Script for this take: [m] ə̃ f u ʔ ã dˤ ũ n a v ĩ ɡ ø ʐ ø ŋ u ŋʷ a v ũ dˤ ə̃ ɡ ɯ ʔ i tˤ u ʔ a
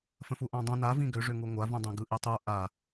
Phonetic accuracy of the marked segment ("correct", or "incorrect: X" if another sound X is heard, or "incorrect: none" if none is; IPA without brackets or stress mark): incorrect: f